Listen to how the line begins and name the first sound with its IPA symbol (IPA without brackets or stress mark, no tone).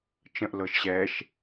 t͡ʃ